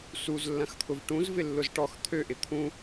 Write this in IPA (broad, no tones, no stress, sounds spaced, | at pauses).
s u z lː ɐ̃ x t̪ʰ ʊ v ʈ ũ z v ɪ lː ʊ z ʈ ɔ x t̪ʰ ø ʔ ɪ t̪ʰ ũ